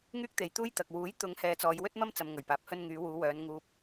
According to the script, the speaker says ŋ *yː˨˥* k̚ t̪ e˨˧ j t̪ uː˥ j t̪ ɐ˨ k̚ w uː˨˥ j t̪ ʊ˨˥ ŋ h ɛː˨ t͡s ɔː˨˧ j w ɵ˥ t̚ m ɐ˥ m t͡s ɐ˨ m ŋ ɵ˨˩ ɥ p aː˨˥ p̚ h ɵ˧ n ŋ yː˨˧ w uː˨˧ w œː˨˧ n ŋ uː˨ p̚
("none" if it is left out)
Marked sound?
yː˥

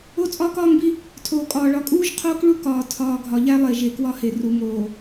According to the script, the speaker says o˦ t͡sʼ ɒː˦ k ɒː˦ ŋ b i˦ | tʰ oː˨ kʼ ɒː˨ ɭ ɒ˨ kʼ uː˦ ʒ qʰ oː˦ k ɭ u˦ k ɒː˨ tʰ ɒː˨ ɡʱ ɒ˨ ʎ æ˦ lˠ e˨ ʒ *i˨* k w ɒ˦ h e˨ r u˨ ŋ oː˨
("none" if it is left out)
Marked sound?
e˨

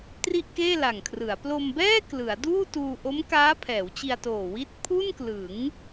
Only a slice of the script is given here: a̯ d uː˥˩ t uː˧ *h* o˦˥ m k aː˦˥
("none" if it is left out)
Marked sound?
ʔ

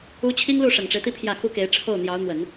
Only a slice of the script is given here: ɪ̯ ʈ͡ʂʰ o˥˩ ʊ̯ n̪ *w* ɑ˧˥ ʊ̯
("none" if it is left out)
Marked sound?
j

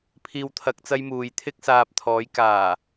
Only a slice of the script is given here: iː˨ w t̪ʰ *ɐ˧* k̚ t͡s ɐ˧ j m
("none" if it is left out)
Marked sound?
ɐ˨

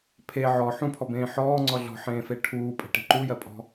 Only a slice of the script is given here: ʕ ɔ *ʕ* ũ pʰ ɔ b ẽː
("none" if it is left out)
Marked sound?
ħ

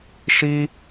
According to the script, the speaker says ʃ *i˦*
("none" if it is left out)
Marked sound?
i˦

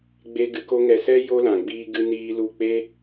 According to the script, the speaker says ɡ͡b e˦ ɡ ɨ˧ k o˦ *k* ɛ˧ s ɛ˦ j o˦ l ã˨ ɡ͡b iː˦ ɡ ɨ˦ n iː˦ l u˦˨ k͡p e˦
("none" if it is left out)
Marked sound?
ŋ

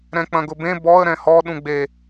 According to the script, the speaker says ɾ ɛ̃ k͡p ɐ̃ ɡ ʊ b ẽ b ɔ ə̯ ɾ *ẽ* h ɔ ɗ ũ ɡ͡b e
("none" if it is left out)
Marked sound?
ɛ̃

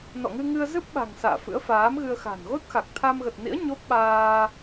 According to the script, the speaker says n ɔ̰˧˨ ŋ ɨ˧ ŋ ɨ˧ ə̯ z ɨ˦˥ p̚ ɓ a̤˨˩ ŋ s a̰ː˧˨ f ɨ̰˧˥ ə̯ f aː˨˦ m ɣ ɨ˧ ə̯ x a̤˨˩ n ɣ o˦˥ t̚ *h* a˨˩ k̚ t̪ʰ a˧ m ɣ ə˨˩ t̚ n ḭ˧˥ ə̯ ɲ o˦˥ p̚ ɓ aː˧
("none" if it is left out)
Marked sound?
x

